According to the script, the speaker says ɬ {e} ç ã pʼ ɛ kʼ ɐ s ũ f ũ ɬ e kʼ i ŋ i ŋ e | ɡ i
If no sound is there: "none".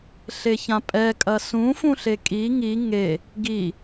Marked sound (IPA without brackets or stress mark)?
e